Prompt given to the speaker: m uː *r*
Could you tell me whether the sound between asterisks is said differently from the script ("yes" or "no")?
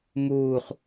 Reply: yes